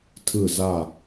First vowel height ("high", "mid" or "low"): high